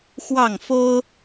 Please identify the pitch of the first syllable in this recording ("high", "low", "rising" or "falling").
falling